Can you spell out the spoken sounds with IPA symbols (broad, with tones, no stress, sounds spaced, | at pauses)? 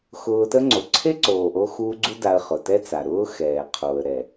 x ʊː˧ t ə˦ ŋ͡ǀ o˨ ǀʰ e˦ ǀ oː˨ ʔ o˧ x uː˧ ɡ͡ǀ u˦ d a˧ ə̯ χ ʊ˨ t ɛ˦ t͡s a˨ ɾ ʊː˦ x ɛː˨ qʰ o˨ ə̯ ɾ ɛ˨